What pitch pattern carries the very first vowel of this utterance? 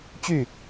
falling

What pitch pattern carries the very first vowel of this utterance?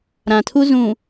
low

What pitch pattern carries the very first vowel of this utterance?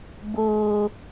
low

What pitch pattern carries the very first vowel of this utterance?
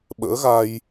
rising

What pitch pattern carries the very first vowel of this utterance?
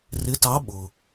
rising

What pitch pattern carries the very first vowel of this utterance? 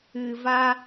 low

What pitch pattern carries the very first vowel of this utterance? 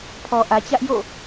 low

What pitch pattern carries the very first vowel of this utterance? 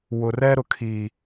low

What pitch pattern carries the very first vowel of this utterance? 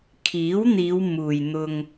rising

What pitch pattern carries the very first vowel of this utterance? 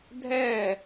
falling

